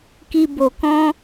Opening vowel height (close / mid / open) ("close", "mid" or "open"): close